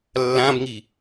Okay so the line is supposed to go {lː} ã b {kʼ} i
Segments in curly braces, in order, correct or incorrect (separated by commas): correct, incorrect